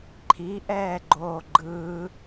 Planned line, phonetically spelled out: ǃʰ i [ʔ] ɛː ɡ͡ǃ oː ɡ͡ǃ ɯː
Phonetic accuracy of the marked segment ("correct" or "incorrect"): correct